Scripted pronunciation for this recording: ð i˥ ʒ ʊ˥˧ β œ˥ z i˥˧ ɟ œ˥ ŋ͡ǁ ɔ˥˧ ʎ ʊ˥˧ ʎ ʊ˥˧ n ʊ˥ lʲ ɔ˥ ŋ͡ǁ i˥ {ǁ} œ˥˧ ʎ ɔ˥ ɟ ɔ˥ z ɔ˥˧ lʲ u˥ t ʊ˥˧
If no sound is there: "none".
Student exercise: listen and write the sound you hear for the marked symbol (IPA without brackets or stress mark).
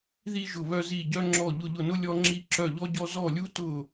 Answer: ǁ